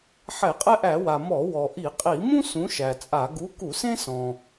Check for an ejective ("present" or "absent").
present